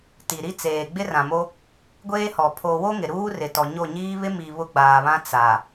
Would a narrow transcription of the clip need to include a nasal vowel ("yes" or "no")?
yes